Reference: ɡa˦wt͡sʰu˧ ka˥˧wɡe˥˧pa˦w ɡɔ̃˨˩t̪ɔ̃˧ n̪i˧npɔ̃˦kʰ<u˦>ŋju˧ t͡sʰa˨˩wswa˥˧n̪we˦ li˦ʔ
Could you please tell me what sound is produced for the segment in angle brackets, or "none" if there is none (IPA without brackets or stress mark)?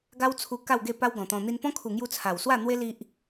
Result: u˨˩